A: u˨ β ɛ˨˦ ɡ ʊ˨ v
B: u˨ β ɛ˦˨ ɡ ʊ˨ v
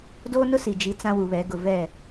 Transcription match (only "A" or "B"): A